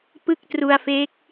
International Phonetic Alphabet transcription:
pɯ˥˩k̚tru˧a̯fe˦˥k̚

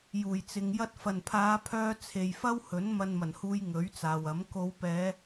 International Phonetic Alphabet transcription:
juː˨˩jt͡sɪ˨ŋjɐ˥t̚ fɐ˨˩npʰaː˨˧pʰœː˧ t͡sʰe˨jfɐ˥whɵ˨˥n mɐ˧nmɐ˨˩nhuː˧j ŋɵ˨˥ɥt͡saː˨wɐ˨˥m ko˨˧wpɛː˨˧

